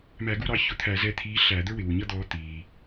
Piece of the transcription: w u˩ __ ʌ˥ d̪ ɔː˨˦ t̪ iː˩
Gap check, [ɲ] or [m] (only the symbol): ɲ